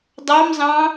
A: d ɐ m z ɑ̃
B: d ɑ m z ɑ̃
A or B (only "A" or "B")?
B